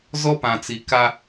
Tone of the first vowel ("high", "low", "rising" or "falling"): high